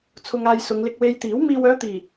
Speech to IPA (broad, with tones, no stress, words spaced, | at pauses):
t͡sʰʊ˧ŋaː˧j sʊ˨˧ŋlɪ˧k̚ we˧jt̪iː˨˥w miː˨wœː˨˧t̪iː˨˩